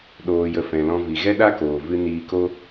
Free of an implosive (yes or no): no